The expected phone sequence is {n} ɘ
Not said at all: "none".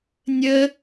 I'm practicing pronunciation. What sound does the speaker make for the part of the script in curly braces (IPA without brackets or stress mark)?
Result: nʲ